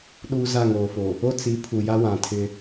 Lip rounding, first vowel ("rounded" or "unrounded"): rounded